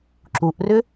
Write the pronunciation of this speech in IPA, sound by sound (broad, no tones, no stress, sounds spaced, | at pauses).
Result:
ǁ u ʔ r ʏ